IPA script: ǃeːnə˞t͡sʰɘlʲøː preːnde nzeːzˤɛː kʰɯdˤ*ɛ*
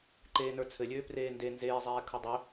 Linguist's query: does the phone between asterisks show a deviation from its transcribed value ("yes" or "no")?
yes